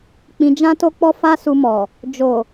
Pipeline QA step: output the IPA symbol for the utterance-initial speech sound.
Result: k͡p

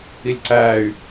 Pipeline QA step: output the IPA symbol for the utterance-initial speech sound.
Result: i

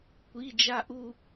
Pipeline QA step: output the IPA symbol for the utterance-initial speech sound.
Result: kʷ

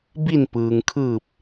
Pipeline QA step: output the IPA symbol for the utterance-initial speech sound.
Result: b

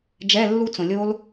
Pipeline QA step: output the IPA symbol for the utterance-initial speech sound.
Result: d͡ʒ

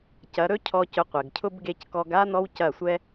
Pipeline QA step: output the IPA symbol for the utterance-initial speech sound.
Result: c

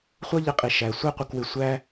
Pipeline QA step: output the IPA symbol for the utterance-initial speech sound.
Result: χʷ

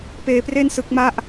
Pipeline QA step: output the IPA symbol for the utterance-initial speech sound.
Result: p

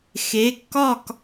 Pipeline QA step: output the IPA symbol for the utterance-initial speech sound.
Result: x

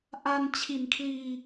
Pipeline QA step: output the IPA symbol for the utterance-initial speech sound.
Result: ʔ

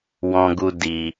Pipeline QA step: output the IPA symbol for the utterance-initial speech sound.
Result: w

